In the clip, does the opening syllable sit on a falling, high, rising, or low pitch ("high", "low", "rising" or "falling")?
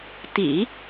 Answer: low